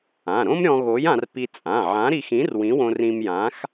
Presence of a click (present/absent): absent